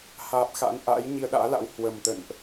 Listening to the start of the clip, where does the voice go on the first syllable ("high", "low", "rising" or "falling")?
low